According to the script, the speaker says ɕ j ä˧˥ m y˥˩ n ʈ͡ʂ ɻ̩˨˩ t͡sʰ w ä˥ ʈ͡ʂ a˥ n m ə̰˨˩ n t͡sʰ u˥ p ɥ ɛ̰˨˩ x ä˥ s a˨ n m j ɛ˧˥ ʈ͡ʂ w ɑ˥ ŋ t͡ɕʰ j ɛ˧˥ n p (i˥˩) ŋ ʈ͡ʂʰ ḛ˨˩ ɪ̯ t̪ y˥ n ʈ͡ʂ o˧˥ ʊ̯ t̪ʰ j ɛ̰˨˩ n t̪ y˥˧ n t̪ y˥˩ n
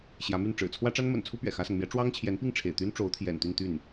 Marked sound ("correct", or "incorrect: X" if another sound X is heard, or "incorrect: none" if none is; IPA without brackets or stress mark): correct